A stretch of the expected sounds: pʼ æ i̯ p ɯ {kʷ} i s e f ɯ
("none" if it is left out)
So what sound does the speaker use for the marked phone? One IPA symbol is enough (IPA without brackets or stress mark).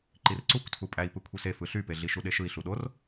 kʷʰ